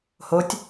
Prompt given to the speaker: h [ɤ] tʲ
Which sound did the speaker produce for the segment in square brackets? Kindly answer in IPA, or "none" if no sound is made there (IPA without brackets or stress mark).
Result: o